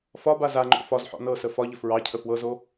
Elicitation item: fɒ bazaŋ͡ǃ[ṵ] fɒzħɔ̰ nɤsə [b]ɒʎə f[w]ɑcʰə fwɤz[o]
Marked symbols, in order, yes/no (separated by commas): no, no, no, yes